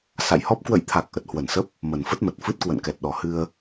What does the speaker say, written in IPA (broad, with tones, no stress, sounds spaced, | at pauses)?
s a̰˧˨ j h ɔ˦˥ p̚ k w ə̰˧˨ j t̪ʰ a˨˩ k̚ ʔ ə˨˩ t̚ h w ə˧˩ n s ə˦˥ p̚ | m ə˨˩ n f ə˦˥ t̚ m ə˨˩ t̚ f ɨ˦˥ t̚ k w ə̰˧˨ n k ɛ˨˩ t̚ ɗ ɔ˨˩ h ɨ˧ ə̯